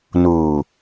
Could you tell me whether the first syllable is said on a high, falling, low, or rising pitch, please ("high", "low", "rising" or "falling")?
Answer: low